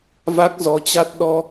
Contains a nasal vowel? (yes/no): no